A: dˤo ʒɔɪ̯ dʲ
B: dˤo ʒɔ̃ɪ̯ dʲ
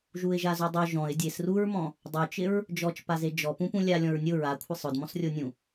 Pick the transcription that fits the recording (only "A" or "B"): B